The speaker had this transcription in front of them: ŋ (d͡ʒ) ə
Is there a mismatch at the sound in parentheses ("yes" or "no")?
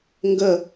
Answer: yes